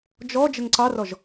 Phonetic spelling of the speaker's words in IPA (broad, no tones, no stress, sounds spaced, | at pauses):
d͡ʒ ɔ d͡ʒ ə ŋ ǀ ɑ r ɔ ʒ